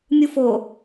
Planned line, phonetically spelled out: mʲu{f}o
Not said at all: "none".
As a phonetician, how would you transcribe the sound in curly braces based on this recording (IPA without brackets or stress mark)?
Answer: f